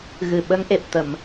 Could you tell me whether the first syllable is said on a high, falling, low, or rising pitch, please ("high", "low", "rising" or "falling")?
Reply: low